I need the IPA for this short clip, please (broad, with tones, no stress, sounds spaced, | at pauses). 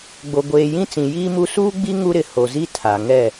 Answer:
ɡ͡b o˨ ɡʷ eː˨ j ĩ˦ t͡s ĩ˨ j iː˦ m u˦ s uː˦ ɡ͡b i˦ ŋ u˦ ɾ ɪ˨ h o˨ z i˦ tʰ a˨ ŋ ɛ˦˨